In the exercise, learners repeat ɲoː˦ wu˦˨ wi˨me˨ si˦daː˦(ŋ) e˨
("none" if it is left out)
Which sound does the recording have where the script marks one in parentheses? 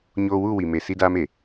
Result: m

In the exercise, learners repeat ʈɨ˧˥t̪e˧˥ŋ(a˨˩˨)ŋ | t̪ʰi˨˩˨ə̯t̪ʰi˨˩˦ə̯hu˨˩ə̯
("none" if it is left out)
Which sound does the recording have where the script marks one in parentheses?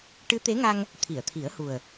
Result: a˧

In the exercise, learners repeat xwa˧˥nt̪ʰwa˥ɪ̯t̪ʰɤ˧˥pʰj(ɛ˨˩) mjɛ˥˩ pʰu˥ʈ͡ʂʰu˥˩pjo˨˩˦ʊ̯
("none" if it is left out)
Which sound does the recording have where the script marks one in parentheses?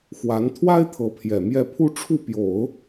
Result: ɛ˨˩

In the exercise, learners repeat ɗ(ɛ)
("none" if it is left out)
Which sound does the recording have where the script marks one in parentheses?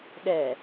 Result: ɛ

